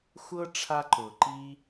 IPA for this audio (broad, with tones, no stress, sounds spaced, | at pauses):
xʷ ɤ˦ ʈ͡ʂʰ a˦ ǃ ʊː˨ ǃ i˦